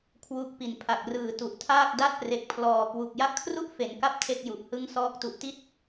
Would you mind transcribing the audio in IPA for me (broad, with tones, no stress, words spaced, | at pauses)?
kʰwu˦˥k̚pi˨˩n pʰa˨˩k̚rɯː˨˩tu˨˩ʔtʰaː˥˩k̚ da˥˩t̚pre˨˩k̚pʰlɔː˨˩kwu˨˩k̚ ja˦˥ʔkʰru˥˩ʔ fe˩˦nka˦˥p̚ tʰe˥˩k̚ju˨˩ʔ hɯ˦˥ŋsɔː˦˥k̚ tu˨˩ʔti˥˩t̚